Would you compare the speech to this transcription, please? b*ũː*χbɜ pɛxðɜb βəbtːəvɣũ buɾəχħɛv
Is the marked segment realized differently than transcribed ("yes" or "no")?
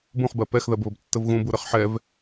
yes